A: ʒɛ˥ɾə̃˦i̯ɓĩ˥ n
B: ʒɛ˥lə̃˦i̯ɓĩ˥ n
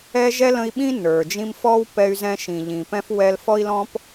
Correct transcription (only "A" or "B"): B